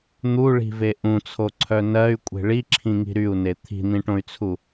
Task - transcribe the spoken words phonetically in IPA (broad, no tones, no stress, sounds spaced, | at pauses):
n̪ u ɭ i̤ v e ʔ ũ t͡sʰ o ǀʰ œ n ɜ y̯ kʷʼ e̤ ɭ i ǁʰ ĩ ŋ i̤ ɾ y u̯ n e t̪ʰ i̤ n̪ ĩ ʈ õ y̯ t͡sʰ u